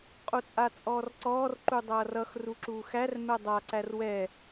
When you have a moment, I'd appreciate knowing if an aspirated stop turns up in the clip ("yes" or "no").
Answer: no